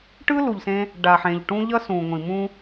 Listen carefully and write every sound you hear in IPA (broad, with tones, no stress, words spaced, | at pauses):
ʈɯ˦lu˨ʎsẽ˧ | ɖa˨ħẽ˨ʎʈũ˦ ʎʌ˦sũ˨ ŋʷĩ˨mũ˦